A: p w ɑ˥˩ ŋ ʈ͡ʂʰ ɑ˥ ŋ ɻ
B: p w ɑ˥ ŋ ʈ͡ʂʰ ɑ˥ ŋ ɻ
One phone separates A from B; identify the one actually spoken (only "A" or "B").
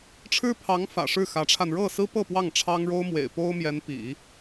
A